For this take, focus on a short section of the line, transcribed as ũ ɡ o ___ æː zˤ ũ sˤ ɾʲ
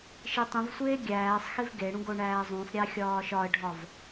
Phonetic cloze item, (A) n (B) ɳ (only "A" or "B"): B